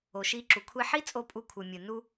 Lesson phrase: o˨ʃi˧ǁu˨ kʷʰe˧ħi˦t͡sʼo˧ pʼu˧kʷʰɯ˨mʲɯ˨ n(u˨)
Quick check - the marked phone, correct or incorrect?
incorrect